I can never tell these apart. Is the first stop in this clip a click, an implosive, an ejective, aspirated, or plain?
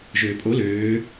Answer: ejective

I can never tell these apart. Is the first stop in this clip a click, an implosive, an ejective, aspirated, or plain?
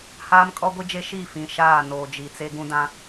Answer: ejective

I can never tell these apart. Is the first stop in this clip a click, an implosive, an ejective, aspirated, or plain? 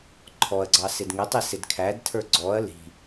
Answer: click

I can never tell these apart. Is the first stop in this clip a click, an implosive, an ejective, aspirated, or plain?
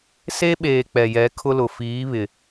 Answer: implosive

